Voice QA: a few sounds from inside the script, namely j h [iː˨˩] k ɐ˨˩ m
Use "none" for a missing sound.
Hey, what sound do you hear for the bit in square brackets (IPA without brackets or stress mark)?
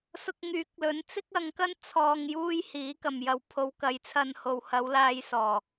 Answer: iː˨˥